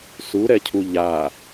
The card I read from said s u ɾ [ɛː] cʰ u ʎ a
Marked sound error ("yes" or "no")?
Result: yes